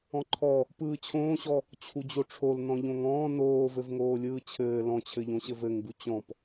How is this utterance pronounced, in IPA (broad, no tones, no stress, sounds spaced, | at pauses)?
ɔ̃ ǃʰ ɔ | p ɯː t͡ɕʰ õː ɕ ɔ | t͡ɕʰ u d͡ʑ o ʈ͡ʂʰ o l n ɔ̃ ʎ õ ŋ ɔ̃ː n oː v ɘ v ŋ oː lʲ ɯː t͡ɕʰ ɘː l ɔ̃ t͡ɕʰ ɘ ʎ õ ɕ ɘ v ɘ ŋ b u t͡ɕ ɔ̃ p